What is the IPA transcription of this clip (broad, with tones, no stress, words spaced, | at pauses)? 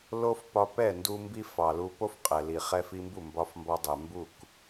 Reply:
lo˦f pɒ˧pɛ˦˨ ndu˧ mbi˦fɑ˨lu˧ po˦f qʼɛ˨li˨ χɛ˧fi˧mbu˦˨ mbɒ˧fmbɒ˧ dˤɛ˨mbu˦˨k